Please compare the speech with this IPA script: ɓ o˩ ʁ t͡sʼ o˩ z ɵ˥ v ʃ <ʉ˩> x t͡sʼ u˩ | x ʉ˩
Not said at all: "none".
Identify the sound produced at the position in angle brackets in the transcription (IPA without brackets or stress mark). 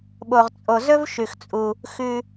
ʉ˩